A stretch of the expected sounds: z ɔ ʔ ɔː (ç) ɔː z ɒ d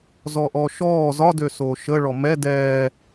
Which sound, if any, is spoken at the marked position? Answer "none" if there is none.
ʃ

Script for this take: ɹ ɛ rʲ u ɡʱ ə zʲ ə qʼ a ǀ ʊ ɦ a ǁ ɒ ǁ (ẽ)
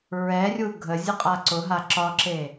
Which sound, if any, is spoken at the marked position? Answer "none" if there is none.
e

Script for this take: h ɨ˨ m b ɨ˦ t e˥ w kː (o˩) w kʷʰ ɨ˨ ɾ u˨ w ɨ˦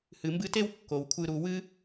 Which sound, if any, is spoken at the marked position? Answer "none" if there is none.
o˩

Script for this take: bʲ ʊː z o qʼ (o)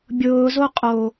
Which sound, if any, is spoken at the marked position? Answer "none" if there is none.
o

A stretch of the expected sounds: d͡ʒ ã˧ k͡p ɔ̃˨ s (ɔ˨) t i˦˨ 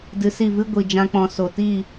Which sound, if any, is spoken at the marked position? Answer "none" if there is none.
o˨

